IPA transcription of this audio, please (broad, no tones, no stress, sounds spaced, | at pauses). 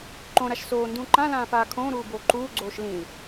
ǃ õ ɾ a ʃ s oː n d ũ ǃ ã l ãː f aː kʰ õː ɾ uː b oː ǃ uː ɡ͡ǀ oː ʃ l ĩ l